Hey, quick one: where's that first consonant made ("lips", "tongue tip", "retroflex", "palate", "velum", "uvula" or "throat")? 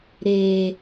tongue tip